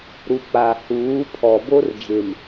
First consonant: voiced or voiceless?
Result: voiced